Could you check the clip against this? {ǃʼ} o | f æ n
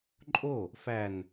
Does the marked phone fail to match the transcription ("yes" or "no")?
no